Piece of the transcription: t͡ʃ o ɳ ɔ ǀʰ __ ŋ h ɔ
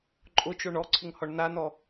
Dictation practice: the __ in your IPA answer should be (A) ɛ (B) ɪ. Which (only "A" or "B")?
B